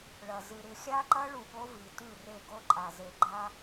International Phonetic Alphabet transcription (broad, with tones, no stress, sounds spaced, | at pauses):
ɭ ɐ˨ z ɨ˨ ɾ ɨ˨ xʲ a˦ ǃ ɐ˦ ɭ u˨ ɠ o˦ v i˨ t ʉ˦˨ r e˦˨ ɡ o˦ ǃʼ a˨ z e˨ ɡ͡ǃ a˦